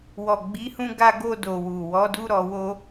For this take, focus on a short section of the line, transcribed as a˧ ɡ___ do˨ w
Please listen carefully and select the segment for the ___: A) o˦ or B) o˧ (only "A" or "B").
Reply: B